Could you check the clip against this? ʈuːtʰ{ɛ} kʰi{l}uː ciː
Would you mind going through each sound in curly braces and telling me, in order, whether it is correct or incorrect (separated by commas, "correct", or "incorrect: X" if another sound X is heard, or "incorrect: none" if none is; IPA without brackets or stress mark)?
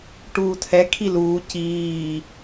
correct, correct